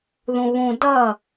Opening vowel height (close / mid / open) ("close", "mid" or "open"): close